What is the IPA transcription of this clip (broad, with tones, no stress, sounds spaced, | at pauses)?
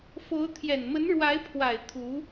f o˧˥ ʊ̯ t̪ʰ j ɛ˨˩ n m ə˧˥ n ɻ w a˧˥ ɪ̯ pʰ w a˨˩ ɪ̯ t̪ʰ u˧˥